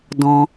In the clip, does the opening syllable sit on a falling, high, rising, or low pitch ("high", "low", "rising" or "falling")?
high